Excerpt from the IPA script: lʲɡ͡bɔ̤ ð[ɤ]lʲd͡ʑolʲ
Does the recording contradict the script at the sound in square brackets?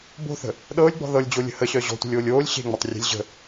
no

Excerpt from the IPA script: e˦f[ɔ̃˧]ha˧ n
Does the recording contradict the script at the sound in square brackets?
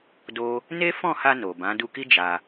yes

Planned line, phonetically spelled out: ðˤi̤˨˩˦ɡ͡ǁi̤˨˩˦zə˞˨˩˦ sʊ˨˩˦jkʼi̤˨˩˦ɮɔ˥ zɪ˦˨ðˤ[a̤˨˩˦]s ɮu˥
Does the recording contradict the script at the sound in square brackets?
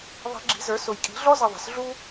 yes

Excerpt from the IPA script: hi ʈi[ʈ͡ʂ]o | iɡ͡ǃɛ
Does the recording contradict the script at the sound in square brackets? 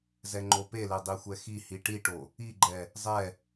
yes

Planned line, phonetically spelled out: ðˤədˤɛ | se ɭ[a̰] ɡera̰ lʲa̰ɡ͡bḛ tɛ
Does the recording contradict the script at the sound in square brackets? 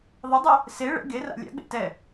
yes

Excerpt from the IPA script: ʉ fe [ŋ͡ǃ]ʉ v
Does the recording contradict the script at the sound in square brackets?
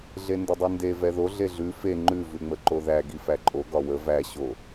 no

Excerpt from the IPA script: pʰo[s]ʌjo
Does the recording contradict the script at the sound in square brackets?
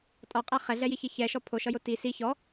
yes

